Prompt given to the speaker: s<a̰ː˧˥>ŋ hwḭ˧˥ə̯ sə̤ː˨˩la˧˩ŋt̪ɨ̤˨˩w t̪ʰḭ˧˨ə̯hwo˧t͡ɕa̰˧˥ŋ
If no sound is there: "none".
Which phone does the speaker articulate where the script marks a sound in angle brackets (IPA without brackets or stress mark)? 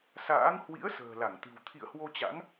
a̰ː˧˥